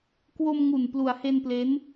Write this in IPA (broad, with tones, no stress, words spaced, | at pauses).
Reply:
kwo˧mŋu˨˩n plu˩˦a̯he˧nple˦˥n